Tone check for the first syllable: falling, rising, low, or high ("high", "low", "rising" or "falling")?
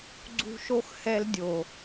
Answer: high